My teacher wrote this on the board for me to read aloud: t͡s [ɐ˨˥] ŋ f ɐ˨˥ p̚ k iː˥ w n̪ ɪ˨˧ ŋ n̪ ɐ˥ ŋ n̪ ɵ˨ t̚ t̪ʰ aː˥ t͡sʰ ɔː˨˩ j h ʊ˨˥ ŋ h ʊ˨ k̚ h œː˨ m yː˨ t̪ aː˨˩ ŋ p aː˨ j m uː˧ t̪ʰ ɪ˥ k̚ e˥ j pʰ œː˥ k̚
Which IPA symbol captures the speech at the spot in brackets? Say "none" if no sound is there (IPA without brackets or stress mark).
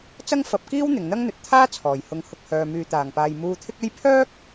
ɐ˥